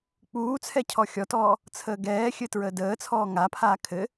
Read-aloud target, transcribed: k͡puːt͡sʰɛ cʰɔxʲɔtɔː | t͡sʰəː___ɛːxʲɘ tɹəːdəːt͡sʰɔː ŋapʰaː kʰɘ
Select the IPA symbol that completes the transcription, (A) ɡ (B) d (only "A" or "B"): A